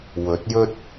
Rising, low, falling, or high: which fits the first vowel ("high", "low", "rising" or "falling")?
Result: rising